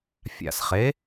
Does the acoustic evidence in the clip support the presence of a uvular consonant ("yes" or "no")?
yes